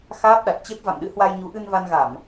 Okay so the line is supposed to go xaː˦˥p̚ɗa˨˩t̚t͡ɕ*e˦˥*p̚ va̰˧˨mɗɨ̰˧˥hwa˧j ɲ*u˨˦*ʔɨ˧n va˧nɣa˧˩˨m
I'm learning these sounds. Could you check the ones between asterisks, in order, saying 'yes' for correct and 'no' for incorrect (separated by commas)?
yes, yes